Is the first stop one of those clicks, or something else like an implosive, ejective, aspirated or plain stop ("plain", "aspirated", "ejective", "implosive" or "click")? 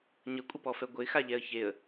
ejective